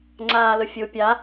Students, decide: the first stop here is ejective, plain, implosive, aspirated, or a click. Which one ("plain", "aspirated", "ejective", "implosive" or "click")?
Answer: click